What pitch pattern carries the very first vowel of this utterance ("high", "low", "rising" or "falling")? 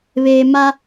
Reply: low